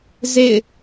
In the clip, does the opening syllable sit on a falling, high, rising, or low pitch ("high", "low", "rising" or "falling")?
falling